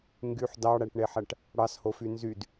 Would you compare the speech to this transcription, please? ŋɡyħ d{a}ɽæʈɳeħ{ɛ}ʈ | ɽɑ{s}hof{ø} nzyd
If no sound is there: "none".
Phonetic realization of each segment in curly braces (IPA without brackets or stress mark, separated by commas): ɑ, æ, s, y